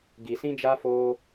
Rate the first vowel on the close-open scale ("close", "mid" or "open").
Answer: close